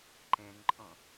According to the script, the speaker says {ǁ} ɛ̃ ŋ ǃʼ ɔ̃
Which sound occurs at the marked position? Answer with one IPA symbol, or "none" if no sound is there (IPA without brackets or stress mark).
ǃ